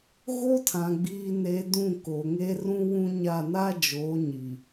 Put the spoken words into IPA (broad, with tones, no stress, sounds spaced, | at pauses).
ɣ o˦ tʰ ã˨ ɡ͡b iː˨ n e˨ d ũ˦˨ k o˨ ŋ eː˦ r ũ˦ w ũ˦ ɲ a˦˨ n a˦ d͡ʒ oː˨˦ ɲ i˨